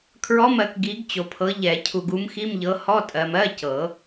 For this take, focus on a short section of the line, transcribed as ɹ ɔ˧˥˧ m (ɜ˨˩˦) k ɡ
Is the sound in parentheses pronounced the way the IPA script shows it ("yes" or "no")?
no